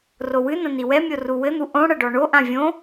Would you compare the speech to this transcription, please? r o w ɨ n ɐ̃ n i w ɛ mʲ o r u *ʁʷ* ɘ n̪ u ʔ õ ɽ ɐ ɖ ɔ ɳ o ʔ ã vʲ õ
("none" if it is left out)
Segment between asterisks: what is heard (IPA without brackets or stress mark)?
w